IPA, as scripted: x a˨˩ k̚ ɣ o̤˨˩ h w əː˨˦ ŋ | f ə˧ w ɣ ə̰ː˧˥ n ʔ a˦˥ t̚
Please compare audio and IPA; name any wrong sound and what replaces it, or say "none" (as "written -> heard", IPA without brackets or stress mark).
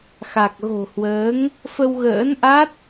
none